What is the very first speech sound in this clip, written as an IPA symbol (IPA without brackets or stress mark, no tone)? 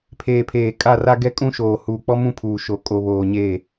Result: pʰ